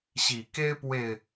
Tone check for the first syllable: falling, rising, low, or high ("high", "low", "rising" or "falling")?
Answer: low